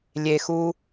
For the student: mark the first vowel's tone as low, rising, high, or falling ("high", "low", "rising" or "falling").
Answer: low